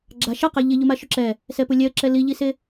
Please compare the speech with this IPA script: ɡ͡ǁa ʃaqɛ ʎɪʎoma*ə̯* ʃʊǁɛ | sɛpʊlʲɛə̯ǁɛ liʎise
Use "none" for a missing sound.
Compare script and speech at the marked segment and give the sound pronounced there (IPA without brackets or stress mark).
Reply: none